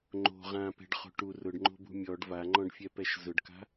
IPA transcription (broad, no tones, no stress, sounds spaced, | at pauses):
ŋ͡ǃ o̤ ʁ ã p ɛ̤ ɖ χ o̤ ʈ u r ʊ ɖ ŋ͡ǃ o̤ b ṳ mʲ ɔ ɖ v a ŋ͡ǃ ɔ̃ ɖ fʲ ɛ p ɛ ʃ z ʊ ɖ k a̤